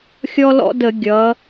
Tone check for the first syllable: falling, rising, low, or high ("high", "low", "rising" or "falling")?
high